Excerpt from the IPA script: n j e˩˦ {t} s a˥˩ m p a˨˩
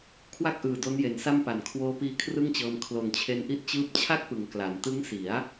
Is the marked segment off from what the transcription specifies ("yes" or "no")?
yes